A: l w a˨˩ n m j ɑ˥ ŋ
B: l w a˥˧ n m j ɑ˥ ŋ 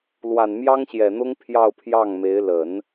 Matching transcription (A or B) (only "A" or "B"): A